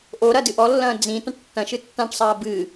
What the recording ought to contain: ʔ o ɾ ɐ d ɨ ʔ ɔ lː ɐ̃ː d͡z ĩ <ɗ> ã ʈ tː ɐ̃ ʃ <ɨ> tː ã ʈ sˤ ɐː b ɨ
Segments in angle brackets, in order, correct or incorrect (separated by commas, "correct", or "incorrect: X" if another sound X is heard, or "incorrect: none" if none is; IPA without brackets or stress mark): incorrect: t, correct